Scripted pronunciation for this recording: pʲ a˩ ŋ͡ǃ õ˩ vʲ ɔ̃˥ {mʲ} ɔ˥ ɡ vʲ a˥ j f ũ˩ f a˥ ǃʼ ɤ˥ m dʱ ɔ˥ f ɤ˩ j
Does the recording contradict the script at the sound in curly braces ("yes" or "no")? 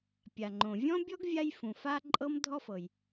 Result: yes